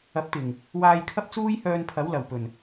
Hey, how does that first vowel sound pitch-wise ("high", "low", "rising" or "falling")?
rising